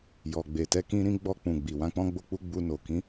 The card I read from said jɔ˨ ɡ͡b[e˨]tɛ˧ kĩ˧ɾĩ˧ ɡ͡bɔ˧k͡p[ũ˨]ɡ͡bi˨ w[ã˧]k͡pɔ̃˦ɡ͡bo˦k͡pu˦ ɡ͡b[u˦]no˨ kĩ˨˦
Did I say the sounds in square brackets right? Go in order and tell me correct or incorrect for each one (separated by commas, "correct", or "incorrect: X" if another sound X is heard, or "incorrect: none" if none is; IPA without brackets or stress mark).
correct, correct, correct, incorrect: u˧